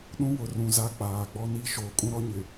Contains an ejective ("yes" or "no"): yes